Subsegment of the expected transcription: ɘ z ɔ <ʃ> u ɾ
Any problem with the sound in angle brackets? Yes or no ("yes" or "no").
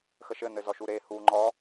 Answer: no